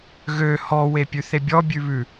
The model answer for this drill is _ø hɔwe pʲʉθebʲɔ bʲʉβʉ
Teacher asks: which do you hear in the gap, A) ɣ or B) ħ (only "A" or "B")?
A